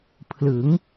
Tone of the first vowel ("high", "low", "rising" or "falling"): rising